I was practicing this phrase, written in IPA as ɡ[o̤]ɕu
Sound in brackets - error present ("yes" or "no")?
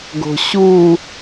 no